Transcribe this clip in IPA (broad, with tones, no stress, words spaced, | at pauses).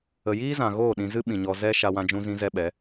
ə˨jiː˦zã˨ ɣoː˦˨ ɗĩ˨ zɨ˦ɓĩ˨ɲɔ˧ zɛ˦ ʃa˧wã˧d͡ʒũ˧zĩ˧ zɛ˦ɓɛ˨˦